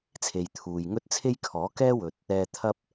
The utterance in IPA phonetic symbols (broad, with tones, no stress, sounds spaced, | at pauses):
t͡sʰ e˨ j t̪ʰ uː˨ j ŋ ɵ˥ t̚ t͡sʰ e˥ j kʰ ɔː˨˥ k ɛː˥ w ɵ˨ t̚ | ɛː˧ t̪ʰ ɐ˥ p̚